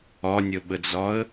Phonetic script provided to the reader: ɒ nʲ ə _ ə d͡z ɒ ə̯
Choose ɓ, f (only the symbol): ɓ